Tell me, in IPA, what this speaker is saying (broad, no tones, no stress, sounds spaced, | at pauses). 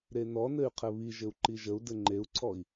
ɾ e n ɔ n ɘ y̯ qʰ ɘ β i ʒ ɘ u̯ ǃ i ʒ ə u̯ d ɘ ŋ͡ǃ e u̯ ǀʰ ɔ i̯